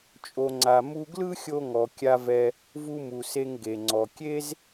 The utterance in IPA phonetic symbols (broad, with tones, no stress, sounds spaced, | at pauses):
t͡ʃʼ o˨ ŋ͡ǀ a˨ m u˧ ɡ l ɯ˦ xʲ o˧ ŋ ɔ˨ kʲ a˧ v ɛ˧ | v u˧ m u˨ s e˧ ŋ ɡ e˨ ŋ͡ǀ ɔ˨ kʲ e˦ z